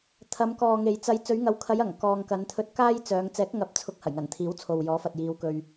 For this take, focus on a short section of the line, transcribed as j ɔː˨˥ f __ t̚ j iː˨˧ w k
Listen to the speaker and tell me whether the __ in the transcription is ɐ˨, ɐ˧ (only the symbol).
ɐ˨